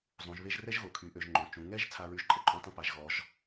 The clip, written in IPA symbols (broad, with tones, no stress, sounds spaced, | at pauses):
zˤ ũ˩˧ ʒ β e˥ ʒ r ɛ˥ ʒ ɣ o˩˧ kʰ y˩˧ ʔ ø˩˧ ʒ ŋ͡ǃ õ˩˧ t͡ʃ ũ˩˧ ŋ ɛ˥ ʒ t͡sʰ a˥ ɹ y˥ ʒ ǃʼ ə˥ ǃʼ ũ˥ tˤ ə̃˥ p a˩˧ ʒ ɣ ɔ˩˧ ʒ